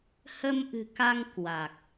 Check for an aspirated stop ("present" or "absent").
absent